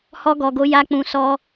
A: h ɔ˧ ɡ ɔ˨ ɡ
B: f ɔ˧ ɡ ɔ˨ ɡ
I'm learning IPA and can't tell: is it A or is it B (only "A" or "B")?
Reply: A